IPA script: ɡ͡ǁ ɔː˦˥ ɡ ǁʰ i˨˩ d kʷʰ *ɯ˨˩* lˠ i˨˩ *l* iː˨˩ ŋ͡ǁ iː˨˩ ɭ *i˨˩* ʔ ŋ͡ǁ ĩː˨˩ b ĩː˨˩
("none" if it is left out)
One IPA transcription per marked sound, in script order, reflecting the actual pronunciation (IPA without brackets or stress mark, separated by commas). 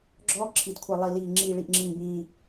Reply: ɯ˨˩, l, i˨˩